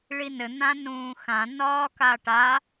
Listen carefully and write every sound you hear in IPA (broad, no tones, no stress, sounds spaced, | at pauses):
ɭ i n ɘ n̪ ã n ũː x ã n ɒː k a ʈ a